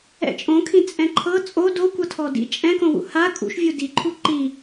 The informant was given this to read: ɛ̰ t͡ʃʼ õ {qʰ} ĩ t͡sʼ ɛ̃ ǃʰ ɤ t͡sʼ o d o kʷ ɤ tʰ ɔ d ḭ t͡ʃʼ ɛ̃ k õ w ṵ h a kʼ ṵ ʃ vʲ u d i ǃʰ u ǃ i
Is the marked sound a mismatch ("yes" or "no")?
yes